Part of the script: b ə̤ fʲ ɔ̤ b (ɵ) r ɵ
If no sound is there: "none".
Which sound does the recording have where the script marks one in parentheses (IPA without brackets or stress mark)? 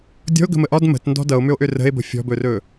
ɵ